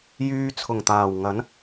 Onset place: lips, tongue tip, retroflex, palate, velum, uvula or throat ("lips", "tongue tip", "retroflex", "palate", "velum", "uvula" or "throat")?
palate